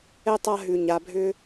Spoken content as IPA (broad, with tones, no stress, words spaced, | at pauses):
ɛ˥tˤa˦ ɦʉ˨ɲa˨bʱʏ˦